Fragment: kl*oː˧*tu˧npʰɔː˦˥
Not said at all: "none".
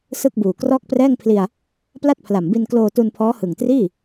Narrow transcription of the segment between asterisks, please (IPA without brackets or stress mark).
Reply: oː˧